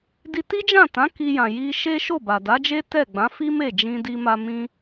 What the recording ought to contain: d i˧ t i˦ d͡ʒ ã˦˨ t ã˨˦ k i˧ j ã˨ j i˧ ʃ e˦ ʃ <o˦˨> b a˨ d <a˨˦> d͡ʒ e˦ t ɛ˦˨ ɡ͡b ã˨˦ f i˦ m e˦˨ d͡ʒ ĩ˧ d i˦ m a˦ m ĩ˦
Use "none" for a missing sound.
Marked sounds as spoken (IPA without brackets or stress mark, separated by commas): o˦˨, a˨˦